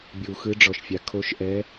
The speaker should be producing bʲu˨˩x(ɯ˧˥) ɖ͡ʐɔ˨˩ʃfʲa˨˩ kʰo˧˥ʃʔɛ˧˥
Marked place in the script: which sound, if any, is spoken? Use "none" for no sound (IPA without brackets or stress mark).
ɯ˧˥